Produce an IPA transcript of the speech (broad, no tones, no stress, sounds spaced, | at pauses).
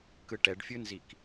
k ɯ ʈ ɛ ɖ fʲ ɯ n z i k